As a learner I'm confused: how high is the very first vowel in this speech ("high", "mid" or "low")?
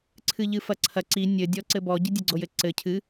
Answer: high